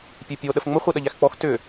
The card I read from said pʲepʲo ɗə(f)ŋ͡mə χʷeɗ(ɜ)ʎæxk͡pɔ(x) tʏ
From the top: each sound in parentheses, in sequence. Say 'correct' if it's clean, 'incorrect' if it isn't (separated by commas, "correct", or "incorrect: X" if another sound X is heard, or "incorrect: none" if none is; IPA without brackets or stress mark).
correct, correct, correct